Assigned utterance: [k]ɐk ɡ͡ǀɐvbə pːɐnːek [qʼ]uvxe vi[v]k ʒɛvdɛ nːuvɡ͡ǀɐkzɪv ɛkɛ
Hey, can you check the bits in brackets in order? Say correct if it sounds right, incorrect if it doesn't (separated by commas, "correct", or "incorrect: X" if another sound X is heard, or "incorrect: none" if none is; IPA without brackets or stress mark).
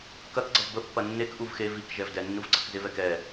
correct, incorrect: ʔ, incorrect: none